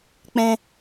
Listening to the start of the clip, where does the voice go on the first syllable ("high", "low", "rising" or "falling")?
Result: high